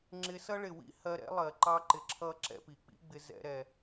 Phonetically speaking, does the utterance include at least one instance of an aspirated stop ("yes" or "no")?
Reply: yes